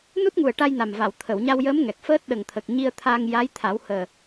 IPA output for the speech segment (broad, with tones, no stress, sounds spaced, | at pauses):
n u˦˥ t̚ ŋ u˨˩ ə̯ ʈ a˧ j n a˨˩ m v a˨˩˨ w t̪ʰ ə˨˩˨ w ɲ a˧ w j əː˧˥ m ŋ ɛ˨˩ k̚ f əː˦˥ t̚ ɗ ə˨˩ ŋ t̪ʰ ə˨˩ k̚ ɲ i˧ ə̯ t̪ʰ aː˧ ŋ j a˧˥ j t̪ʰ a˨˩˦ w h əː˨˩